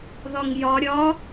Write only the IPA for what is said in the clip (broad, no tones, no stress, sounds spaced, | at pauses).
ð ɒ ŋ j ɒ ɾʲ ɒ